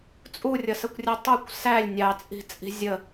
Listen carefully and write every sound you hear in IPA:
t͡sʼ u rʲ ʌ s ə kʷ rʲ ɛ tˤ u kʷ s æ lʲ nʲ ɑ t͡sʼ i̤ t͡sʼ i̤ zʲ ə

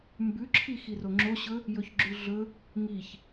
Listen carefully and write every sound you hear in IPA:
m b ʉ ǁʰ i x i r o ŋ͡ǁ o ɕ ɵ | j ɵ ç ɡ͡ǁ ʉ ɮ ɵ | ŋ i ç

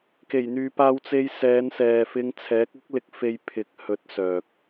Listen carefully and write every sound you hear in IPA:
k e˨˩ j n̪ yː˨ p aː˧ w t͡s e˧ j s ɛː˨˧ n s ɛː˨ f ɪ˧ ŋ t͡sʰ ɛː˨˥ k̚ ʊ˥ k̚ l ɪ˨˥ k̚ f e˧ j pʰ ɪ˨˥ k̚ h ɵ˨˥ t̚ s œː˨ k̚

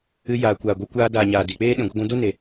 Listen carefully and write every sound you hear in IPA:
ɨ˧ j aː˨ kʷ aː˨ ɡʷ ɨ˧ kʷ aː˧ d aː˨ ɲ aː˨ d i˨ k͡p eː˦ ɗ ĩ˨ ɡʷ ə˧ ɡʷ ũ˧ d u˦ n e˨

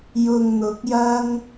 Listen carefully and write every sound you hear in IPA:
j ʊ˨ ŋ n̪ ʊ˨˥ k̚ j ɐ˥ ŋ

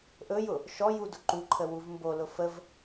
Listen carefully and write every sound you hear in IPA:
ʔ ɵ j ʊ | ʃ ɔ j u d ʊ ǃ u ǃʰ ə w u v m b o l ʊ f ə v

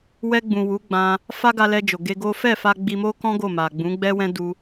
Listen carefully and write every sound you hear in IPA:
w ɛ˧ ɡ͡b ũ˨ w u˨˦ ɡ͡b ã˧ | f a˦ ɡ a˧ l ɛ˧ d͡ʒ o˨ ɡ e˧ ɡ o˦ f ɛ˦˨ f a˧ ɡ͡b i˧ m o˦ k ɔ̃˦ ɡ o˦˨ m a˨ ɡ͡b ũ˨˦ ɡ͡b ɛ˦ w ɛ̃˦ d u˧

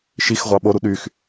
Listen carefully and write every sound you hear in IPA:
ʃ i x ʁʷ ɑ ɓ o ɾ u ɗ y x

